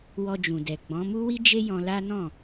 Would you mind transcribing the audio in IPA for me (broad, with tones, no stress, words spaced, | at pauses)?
wɔ˧d͡ʒũ˨dɛ˨ɡ͡bɔ̃˨˦ mu˦wi˦d͡ʒe˦jɔ̃˧ la˦nɔ̃˦˨